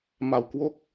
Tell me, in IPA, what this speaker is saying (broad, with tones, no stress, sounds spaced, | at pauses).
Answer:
m a˨˩ w k w o˦˥ k̚